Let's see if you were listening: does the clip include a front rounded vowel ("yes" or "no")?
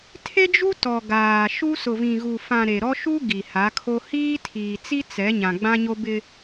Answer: no